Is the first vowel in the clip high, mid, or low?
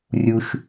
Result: high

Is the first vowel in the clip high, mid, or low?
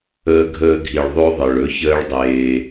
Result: mid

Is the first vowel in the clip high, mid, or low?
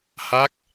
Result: low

